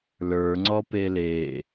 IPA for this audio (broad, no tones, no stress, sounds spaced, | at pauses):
l ə˞ ŋ͡ǀ ɔ p e l e